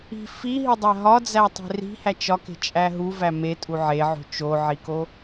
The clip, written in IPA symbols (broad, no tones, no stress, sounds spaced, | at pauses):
i̤ f i ɦ i dˤ æ ɦ ɒ d͡z æ tˤ e̤ r i̤ h æ t͡ʃ ɒ k e̤ t͡ʃʼ æ ɦ u v æ m e tʼ u ʕ e ʕ o̤ t͡ʃ o ʕ i k o